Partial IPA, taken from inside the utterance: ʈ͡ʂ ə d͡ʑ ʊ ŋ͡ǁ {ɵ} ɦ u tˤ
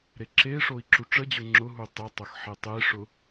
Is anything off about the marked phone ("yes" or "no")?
yes